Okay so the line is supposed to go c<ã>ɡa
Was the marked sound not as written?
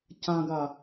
no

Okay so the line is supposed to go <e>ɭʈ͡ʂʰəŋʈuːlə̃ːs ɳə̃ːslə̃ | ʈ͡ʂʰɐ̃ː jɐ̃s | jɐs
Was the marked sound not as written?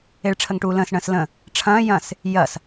no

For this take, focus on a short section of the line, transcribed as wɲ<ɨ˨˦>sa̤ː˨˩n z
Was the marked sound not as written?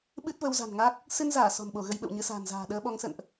no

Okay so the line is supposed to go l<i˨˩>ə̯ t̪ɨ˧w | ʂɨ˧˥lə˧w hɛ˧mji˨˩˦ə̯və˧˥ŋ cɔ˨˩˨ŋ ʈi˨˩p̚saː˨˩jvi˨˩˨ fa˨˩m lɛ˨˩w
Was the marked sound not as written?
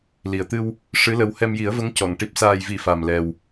no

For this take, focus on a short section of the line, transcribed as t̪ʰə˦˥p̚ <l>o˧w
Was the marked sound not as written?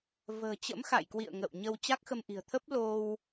no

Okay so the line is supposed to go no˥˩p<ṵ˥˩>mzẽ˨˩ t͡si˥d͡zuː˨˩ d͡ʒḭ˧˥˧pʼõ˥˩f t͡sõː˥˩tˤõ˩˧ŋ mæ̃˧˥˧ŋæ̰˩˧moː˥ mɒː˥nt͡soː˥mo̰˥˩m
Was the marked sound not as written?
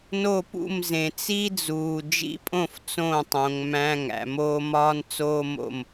no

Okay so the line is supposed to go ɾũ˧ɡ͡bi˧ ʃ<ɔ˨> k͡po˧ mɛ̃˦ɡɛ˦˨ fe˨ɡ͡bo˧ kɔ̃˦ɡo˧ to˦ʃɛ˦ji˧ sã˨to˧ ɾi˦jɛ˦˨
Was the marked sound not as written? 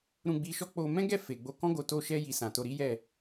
yes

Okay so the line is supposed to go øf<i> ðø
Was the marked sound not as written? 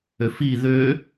no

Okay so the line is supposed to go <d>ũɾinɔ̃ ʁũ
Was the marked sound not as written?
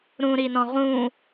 yes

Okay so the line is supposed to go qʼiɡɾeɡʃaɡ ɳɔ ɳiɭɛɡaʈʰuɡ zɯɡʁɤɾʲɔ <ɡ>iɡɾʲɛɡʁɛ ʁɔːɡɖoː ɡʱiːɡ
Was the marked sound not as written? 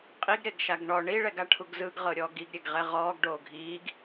no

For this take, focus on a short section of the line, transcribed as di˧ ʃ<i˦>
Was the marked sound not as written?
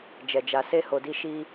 no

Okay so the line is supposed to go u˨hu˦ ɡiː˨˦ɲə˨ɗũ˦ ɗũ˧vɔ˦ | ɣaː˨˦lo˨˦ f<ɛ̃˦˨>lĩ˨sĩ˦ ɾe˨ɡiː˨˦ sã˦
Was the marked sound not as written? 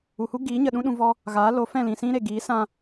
no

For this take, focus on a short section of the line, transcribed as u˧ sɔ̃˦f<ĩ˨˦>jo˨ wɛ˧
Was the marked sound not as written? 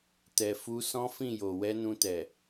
yes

